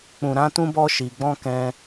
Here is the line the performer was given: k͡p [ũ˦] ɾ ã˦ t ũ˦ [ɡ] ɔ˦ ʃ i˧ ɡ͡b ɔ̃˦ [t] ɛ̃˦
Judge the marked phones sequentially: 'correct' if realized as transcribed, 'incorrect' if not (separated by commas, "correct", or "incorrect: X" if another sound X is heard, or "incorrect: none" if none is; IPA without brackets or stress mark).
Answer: correct, incorrect: b, incorrect: k